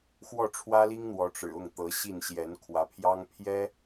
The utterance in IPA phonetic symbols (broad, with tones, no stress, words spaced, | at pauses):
xwɔ˥˩ʈ͡ʂʰwä˥li˥ŋn̪wɔ˧˥ ʈ͡ʂɻ̩˨˩ʊ˥˩ŋ t̪ɤ˧˥ɕi˥˩n ɕjɛ˧˥nkʰwä˧˥pʰjɑ˥ŋ pʰjɛ˥